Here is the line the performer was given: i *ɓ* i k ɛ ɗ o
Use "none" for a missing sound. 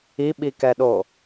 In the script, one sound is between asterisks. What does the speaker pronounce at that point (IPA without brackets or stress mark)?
ɓ